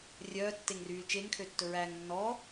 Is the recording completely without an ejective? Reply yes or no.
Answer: yes